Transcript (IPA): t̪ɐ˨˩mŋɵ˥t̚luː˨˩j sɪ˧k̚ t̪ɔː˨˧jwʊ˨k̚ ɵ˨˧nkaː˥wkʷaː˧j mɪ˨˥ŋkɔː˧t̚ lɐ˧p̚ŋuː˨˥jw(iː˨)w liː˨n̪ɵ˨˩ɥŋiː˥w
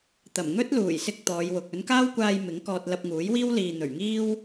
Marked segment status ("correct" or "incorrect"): incorrect